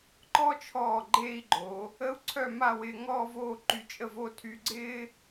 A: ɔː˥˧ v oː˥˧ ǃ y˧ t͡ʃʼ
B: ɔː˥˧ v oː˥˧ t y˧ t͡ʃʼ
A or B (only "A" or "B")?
A